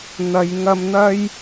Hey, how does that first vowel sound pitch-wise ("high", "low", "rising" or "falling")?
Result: low